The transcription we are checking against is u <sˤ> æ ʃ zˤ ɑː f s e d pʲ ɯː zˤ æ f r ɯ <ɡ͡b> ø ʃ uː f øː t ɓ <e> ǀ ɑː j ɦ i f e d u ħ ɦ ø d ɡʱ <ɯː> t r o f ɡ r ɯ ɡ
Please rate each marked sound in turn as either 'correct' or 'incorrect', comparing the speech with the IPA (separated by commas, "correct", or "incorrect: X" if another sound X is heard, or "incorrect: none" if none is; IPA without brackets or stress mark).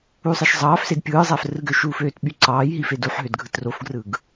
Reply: correct, incorrect: ɡ, incorrect: y, incorrect: ɯ